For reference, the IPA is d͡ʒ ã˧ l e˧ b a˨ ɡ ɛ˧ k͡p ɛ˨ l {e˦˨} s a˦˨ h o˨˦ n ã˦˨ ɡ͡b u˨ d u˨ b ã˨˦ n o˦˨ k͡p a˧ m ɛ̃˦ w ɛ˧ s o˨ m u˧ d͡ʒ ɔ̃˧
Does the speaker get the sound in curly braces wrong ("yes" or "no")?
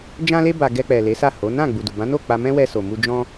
yes